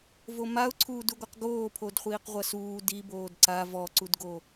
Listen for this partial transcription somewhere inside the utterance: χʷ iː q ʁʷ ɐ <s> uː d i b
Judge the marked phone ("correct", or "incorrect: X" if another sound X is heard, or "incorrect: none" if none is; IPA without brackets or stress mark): correct